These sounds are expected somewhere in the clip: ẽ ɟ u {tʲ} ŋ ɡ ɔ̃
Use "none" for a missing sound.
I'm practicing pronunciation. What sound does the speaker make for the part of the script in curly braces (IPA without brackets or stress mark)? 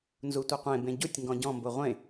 tʲ